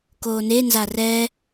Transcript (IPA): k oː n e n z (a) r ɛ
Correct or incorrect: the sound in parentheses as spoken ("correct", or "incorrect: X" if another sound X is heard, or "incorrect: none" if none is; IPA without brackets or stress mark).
correct